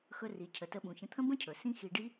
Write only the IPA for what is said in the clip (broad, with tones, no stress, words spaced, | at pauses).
xɵ˧ri˩cʰə˩ tə˧ɓũ˩çə̃˧ t̪ʰə̃˥ bə̃˥cʰɵ˩ sĩ˥xi˧ ɖi˥